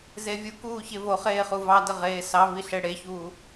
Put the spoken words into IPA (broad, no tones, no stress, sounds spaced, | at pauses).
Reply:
z e vʲ u k uː ç e v o χ eː χ u v ɑ d ə ʁ eː s ɑ v i ɬ e ɽ e ç uː